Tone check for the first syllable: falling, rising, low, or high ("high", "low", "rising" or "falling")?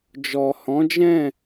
low